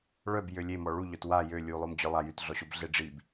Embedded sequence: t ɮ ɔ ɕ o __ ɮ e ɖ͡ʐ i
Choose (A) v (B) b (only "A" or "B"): B